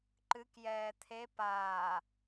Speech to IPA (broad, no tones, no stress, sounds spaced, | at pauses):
ǃ ɨ k j ɛː t̪ʰ e p aː